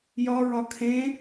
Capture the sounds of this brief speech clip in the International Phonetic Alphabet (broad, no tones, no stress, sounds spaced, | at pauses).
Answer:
j ɒ ɹ ɒ kʰ ẽ